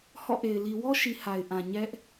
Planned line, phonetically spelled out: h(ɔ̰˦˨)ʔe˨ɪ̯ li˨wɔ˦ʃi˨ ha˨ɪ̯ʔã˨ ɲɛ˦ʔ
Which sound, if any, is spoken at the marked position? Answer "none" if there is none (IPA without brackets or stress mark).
ɔ̰˦˨